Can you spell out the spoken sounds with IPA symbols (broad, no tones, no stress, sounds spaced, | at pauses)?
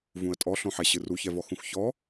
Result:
v ũ ə̯ tʼ ɔ ɬ õ ħ ɛ ɕ ɨ r u ç ɛ v ɔ x ũ x ç ɔ